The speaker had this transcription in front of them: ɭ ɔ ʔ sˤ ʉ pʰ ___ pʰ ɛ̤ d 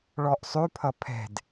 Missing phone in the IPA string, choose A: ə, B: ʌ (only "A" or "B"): B